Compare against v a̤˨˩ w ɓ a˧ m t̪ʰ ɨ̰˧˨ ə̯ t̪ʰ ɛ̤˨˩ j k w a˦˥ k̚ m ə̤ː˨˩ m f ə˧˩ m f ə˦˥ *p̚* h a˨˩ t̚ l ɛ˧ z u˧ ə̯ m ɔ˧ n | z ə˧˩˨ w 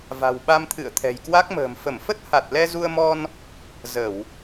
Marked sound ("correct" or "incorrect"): incorrect